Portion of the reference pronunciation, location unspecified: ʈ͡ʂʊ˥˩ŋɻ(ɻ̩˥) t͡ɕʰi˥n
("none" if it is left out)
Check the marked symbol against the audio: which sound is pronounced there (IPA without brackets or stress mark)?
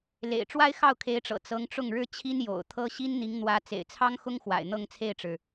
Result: ɻ̩˥